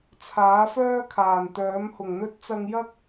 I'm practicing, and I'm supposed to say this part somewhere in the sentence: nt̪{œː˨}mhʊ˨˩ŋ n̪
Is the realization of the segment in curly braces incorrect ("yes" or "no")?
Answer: yes